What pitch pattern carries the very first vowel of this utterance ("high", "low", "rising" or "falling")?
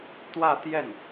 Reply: falling